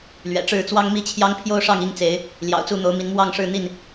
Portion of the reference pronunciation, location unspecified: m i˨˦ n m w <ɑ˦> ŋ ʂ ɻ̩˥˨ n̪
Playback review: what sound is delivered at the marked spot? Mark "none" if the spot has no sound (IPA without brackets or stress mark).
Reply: ɑ˥˨